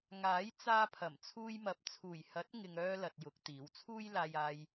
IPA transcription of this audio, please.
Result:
ŋ aː˨˥ j t͡s aː˧ pʰ ɐ˨˩ m t͡sʰ uː˧ j m ɐ˨ p̚ t͡sʰ uː˨˩ j h ɐ˨˥ t̚ ŋ ɪ˨ ŋ œː˥ l ɐ˧ t̚ j ʊ˨˥ k̚ t̪ iː˨˥ w t͡sʰ uː˥ j l aː˧ j aː˧ j

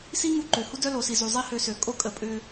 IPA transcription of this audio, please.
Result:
s i˦ ŋ u˦ ǃ ø˨ h u˦ d œ˦ l o˨ s i˨ z u˨ zˤ i˦ h ø˧ s ø˨ kʼ o˦ kʼ ə˧ pʼ ʏ˧

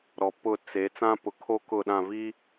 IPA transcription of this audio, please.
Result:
ɾ ɔ˨ p ʊ˦˨ t͡s e˨˦ t͡s ã˦ p ʊ˨ kʰ o˦ k ʊ˦˨ ɗ ã˦˨ v i˦

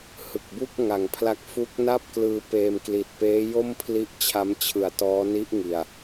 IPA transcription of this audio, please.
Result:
h ɯ˨˩ k̚ b u˥˩ k̚ ŋ a˨˩ ŋ pʰ l a˦˥ k̚ f u˦˥ k̚ n a˥˩ p̚ k l ɯː˧ p eː˧ m k l i˨˩ t̚ p eː˦˥ j o˥˩ m pʰ l i˦˥ ʔ t͡ɕʰ a˦˥ m t͡ɕʰ ɯ˨˩ a̯ t ɔː˦˥ n i˦˥ ʔ ŋ i˨˩ a̯

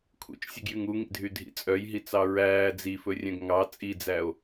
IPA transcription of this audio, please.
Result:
kʰ ṵ t͡ʃ sʲ u ɡ j y ŋ u ŋ ḭ dʱ y dʱ ḭ t͡sʼ œ j ɦ i t͡s ɑ ɹ æː d͡z i f ɵ rʲ œ̃ ɡ ŋ ɑ t͡sʼ i d͡z æ o̯

